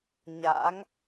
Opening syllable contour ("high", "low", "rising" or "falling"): rising